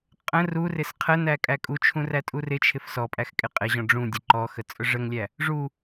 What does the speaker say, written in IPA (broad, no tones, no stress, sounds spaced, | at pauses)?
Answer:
qʼ ə̃ r u r ɪ s qʰ ə n æ kʼ æ kʼ u t͡ʃʰ ũ r æ tʼ u r ɪ t͡ʃʰ ɪ f s ɔ pʼ æ x kʼ ɪ qʼ ɪ ʑ ɔ̃ ɖ͡ʐ ũ dʲ ə ǃ ɔ x ə t͡sʼ ʊ ʐ ə ŋ lʲ æ | ʐ u